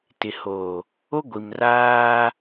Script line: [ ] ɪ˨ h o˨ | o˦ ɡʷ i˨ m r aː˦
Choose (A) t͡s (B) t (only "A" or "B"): B